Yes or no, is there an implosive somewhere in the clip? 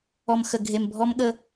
yes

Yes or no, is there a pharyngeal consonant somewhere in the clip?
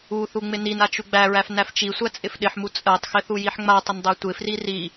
yes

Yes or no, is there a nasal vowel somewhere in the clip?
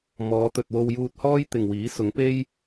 no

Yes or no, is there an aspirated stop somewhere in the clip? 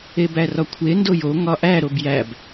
yes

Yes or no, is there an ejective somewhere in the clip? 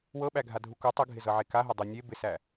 no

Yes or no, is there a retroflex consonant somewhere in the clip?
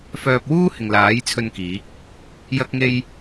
no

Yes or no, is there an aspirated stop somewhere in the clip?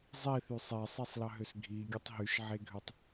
no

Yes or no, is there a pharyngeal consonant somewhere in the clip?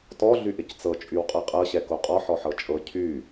yes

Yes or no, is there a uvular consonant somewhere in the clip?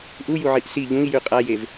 yes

